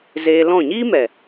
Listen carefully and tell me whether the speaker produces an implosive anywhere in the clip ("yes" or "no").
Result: no